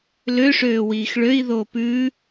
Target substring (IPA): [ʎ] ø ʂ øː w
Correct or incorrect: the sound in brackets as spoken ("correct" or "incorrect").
incorrect